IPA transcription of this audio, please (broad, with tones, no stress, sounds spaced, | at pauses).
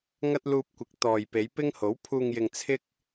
ŋ ɐ˧ t̚ l uː˧ p̚ kʷ ɪ˨˥ k̚ t̪ ɔː˨ j p e˨˧ j p ɪ˥ ŋ h o˨˥ w pʰ uː˨ ŋ j ɪ˨ ŋ t͡sʰ ɪ˥ k̚